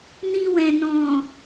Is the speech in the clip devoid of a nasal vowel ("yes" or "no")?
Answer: no